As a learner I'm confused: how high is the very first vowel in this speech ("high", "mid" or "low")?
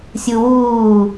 high